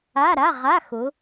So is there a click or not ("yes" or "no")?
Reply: no